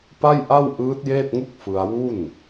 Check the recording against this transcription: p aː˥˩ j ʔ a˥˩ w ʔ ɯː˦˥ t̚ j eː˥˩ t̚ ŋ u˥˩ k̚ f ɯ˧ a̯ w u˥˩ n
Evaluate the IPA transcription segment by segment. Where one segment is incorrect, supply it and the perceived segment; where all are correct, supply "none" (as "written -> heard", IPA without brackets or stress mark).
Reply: aː˥˩ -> a˥˩